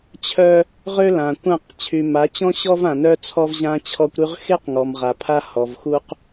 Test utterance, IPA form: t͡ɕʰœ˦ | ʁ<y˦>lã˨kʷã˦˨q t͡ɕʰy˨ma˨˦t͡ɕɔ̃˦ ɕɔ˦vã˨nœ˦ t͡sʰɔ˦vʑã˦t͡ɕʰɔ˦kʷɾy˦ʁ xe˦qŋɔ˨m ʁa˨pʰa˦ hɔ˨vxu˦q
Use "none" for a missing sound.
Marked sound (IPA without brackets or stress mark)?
ø˦